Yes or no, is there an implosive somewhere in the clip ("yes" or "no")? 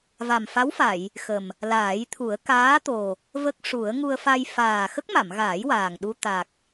yes